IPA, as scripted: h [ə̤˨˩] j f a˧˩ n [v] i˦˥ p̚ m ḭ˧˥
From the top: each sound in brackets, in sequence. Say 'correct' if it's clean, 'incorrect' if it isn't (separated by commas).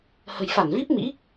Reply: correct, correct